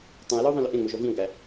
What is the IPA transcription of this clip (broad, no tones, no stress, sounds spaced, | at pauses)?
tˤ ũ e̯ l ɔ o̯ ðˤ ĩ l ʏ ʔ ẽ ŋ͡m o ʒ ɔ v ĩ o̯ ɡ æ